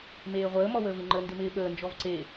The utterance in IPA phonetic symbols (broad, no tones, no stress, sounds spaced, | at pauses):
m eː ʁʷ əː m ɔ w əː v ɪ ŋ͡ǃ ə n d ɪ m ɪː ɓ əː n d͡ʒ ɔ v ǀ e